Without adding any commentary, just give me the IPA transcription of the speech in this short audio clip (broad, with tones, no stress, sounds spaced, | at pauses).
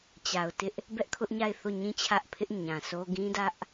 t͡ɕ a˨ ʊ̯ t ɪ˦ ʔ | b ɛ˦ ʔ kʰ ʊ˦ ʔ ɲ a˦˨ ɪ̯ θ o˦˨ ɲ ĩ˦ t͡ɕʰ ä˦ ʔ pʰ ɪ˦ ʔ ɲ ã˨ sʰ o˦ ɡ ĩ˦ d ä˦ ʔ